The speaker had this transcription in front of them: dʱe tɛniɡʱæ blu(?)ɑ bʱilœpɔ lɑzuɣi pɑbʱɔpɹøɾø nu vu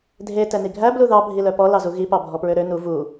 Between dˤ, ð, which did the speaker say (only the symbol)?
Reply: ð